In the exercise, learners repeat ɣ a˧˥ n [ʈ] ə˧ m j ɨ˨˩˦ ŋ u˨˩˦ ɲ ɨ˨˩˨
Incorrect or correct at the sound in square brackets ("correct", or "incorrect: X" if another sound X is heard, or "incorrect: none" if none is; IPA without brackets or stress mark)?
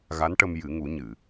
correct